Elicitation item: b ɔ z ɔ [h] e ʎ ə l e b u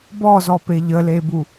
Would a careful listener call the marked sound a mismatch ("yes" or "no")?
yes